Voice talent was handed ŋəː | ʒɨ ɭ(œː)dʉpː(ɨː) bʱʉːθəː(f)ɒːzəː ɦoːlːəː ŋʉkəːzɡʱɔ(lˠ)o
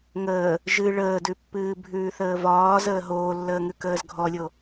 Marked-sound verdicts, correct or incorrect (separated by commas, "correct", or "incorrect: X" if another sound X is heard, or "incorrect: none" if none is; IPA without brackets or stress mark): incorrect: əː, correct, incorrect: v, incorrect: lʲ